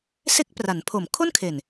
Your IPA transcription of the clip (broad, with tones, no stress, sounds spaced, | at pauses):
s e˦˥ k̚ p r a˩˦ n pʰ o˨˩ m kʰ o˥˩ n kʰ e˨˩ n